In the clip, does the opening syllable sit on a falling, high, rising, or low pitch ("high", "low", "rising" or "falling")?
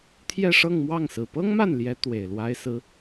falling